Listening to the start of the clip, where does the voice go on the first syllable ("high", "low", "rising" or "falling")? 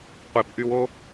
low